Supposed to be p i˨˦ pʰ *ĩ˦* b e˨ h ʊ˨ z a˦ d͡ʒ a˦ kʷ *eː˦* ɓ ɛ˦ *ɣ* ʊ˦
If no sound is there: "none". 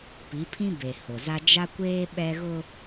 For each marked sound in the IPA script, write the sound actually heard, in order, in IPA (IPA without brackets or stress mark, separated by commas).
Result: ĩ˦, eː˦, ɣ